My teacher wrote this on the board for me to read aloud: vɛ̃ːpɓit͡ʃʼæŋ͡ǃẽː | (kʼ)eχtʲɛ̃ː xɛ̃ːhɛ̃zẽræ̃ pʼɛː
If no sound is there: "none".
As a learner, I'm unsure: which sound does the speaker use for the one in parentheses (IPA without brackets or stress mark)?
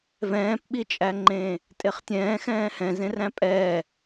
tʼ